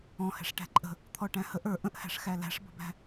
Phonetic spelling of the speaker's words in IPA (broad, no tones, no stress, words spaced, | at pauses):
ɔ̃hɛ̤ʂ ʈæ̤ǃʼə̤ | t̪ʰɔʈæ̃həʔ ə˞ ʔə̃ʔhæ̤ʂ xælæ̤ʂbə̤bæ̤